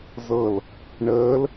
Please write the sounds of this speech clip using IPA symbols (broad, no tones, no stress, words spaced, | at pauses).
zɤl | ɳəːl